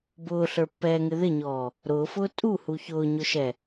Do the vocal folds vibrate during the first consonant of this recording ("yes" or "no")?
yes